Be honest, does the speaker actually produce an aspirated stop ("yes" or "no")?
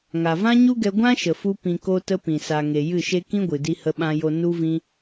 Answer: no